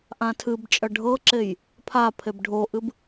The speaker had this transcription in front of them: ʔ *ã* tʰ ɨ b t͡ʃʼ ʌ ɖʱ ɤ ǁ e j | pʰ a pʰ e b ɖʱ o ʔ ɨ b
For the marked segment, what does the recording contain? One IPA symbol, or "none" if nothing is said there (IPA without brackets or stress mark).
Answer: ã